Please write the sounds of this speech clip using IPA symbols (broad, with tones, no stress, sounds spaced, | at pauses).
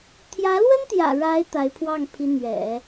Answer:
t̪ʰ j ä˧˥ l w ə˥ n t̪ j ä̰˨˩ ɻ a˧˥ ɪ̯ t̪ a˧˥ ɪ̯ pʰ w ɑ˥˩ ŋ pʰ i˧˥ n̪ ɥ ɛ̰˨˩˦